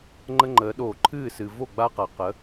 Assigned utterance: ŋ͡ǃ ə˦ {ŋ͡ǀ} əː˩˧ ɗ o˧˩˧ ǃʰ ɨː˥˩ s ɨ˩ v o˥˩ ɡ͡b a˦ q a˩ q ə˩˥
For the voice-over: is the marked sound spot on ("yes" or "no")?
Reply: no